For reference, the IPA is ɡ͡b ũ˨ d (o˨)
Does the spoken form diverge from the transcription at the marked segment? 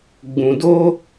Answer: yes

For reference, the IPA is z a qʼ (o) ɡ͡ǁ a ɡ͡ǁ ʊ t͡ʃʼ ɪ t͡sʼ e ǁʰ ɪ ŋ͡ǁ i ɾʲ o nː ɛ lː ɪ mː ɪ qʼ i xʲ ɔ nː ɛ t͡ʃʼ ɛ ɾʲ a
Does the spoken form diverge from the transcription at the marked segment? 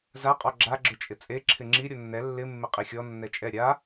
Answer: yes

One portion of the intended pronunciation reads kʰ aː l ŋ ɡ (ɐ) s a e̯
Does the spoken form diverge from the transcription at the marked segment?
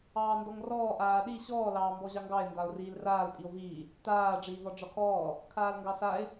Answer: yes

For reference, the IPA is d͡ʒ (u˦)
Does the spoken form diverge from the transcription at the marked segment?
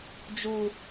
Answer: no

